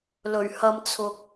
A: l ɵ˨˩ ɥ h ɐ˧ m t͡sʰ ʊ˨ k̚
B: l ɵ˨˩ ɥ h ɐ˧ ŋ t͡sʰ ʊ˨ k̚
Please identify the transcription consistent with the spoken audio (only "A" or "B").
A